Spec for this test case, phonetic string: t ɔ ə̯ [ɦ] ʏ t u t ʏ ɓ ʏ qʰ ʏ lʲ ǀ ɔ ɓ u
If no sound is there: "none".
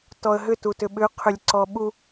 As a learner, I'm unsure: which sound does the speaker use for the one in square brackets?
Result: ɦ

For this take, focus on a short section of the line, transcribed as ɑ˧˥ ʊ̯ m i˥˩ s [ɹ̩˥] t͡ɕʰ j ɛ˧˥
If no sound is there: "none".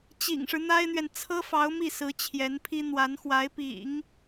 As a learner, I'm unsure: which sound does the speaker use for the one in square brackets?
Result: ɹ̩˧˥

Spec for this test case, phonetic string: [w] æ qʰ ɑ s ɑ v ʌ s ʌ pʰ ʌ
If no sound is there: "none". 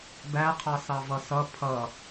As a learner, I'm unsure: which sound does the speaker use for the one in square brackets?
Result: b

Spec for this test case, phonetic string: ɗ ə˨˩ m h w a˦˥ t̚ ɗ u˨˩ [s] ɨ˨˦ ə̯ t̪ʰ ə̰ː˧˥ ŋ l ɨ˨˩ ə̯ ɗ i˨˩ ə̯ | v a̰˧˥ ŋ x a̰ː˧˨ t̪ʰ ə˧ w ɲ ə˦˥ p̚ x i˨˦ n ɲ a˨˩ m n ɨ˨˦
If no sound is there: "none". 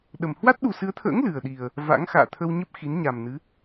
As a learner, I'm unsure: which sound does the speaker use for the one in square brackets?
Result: s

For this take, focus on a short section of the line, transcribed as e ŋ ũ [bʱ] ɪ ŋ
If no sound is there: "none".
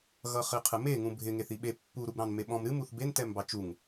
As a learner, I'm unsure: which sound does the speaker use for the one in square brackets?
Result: bʱ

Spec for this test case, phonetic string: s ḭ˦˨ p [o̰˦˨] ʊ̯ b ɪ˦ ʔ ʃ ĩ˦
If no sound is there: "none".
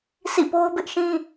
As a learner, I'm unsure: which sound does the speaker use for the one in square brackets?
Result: o˦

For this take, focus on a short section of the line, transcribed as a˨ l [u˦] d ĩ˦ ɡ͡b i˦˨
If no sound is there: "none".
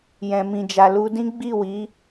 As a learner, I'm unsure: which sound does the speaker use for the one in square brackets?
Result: u˧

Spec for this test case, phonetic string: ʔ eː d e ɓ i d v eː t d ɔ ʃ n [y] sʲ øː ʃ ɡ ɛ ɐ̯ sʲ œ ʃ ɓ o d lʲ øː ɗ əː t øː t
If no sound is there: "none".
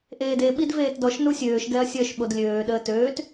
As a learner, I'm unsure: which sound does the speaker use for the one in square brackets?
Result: u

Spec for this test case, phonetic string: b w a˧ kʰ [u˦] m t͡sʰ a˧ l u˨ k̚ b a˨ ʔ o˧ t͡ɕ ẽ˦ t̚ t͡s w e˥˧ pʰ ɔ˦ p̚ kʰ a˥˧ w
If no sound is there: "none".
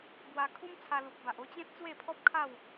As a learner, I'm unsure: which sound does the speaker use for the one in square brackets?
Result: u˦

